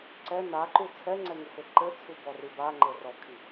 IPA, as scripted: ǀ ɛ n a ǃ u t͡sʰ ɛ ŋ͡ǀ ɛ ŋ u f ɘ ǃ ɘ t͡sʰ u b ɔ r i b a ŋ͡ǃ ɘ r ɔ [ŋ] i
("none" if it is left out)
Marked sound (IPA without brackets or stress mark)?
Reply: kʰ